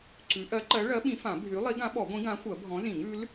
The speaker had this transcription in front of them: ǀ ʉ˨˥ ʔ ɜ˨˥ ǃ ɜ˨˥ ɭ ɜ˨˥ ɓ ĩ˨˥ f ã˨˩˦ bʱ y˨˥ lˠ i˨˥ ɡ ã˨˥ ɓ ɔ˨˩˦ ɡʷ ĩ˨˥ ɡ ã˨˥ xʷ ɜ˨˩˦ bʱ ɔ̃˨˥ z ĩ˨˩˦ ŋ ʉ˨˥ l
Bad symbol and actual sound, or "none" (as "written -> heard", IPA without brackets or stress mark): none